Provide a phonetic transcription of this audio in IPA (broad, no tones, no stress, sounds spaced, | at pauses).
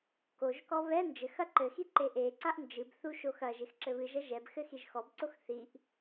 k o ʒ k ɔ β ɛ n d͡ʒ ɘ x ɐ ǃ ɘ x i ǃ e ʔ e ǀ a ʔ n d͡ʒ ɨ b θ u ʃ o x ɐ ʒ e x ǁ ɘ β ɨ ʒ ɐ ʒ ɛ b x ɘ x i ʒ x ɔ b ǀ o x θ i ʔ